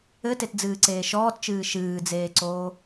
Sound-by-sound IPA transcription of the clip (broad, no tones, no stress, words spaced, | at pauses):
ɘtetd͡zɨːǀeː ʃɔːtt͡ʃɨː ʃɨːd͡zeːǀoː